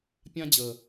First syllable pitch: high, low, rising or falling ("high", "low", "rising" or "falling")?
high